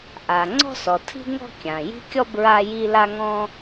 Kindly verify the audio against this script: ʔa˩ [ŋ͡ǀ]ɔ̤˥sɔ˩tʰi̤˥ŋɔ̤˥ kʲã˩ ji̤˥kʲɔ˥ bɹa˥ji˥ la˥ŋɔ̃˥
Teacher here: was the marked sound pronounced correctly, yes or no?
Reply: yes